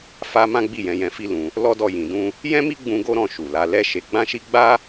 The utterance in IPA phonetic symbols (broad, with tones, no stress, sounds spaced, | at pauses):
f a˧ m ã˦ ɡ͡b i˦˨ j ɛ̃˧ j ɛ̃˧ f i˦ l ũ˧ | l ɔ˦ d ɔ˦˨ j ĩ˨ d ũ˧ | j ɛ̃˦ m i˦ ɡ͡b ũ˦ ɡ o˦ ɾ ɔ̃˦˨ ʃ u˨ l a˨˦ l ɛ˦ ʃ e˧ ɡ͡b ã˦ ʃ i˦ ɡ͡b a˦